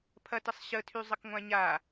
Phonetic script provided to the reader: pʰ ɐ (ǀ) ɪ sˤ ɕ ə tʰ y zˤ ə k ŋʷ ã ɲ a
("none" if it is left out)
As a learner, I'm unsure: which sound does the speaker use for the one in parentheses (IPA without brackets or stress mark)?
t